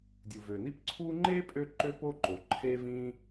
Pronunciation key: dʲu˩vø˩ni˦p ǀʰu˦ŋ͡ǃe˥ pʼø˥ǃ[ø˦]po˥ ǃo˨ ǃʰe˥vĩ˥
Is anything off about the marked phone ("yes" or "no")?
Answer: yes